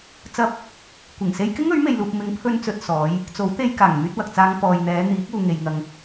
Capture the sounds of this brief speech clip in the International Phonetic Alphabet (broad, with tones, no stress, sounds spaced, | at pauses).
t͡s ɐ˧ p̚ | kʷ ɪ˨˩ ŋ s e˧ j k ɪ˥ ŋ ɵ˨˥ ɥ m e˧ j l uː˧ p̚ m ɪ˨˥ ŋ pʰ ɵ˧ n t͡s ɵ˨ t̚ s ɔː˨˧ j | t͡s o˨˥ w t̪ e˧ j k aː˨˩ ŋ m yː˧ t̚ w ɐ˨ k̚ t͡s aː˧ ŋ p ɔː˨ j n̪ ɛː˨˧ n̪ iː˨˥ k̚ uː˨ ŋ e˨ j ŋ ɐ˨ ŋ